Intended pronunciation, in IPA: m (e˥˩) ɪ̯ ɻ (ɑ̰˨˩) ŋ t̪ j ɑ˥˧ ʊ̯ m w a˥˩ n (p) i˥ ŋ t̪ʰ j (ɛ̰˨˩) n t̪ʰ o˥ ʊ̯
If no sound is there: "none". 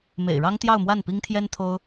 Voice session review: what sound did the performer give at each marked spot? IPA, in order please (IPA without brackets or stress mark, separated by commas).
ḛ˨˩, ɑ˥, p, ɛ˥